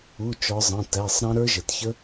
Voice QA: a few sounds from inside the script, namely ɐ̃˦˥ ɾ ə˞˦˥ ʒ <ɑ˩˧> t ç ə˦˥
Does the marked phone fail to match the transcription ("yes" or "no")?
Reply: yes